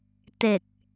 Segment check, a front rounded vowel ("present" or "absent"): absent